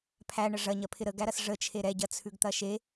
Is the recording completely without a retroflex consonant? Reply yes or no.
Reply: no